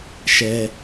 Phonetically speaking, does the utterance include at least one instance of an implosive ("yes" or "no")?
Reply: no